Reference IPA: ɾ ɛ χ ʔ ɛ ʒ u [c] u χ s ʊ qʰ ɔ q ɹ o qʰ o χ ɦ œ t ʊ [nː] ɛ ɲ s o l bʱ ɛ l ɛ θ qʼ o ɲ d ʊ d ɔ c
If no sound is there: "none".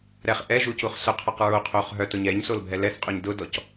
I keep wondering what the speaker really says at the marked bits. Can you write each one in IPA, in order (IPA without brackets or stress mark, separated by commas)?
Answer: c, ɲ